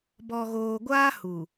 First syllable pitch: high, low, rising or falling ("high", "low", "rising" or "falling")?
low